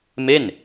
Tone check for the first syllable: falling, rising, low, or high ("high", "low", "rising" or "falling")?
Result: falling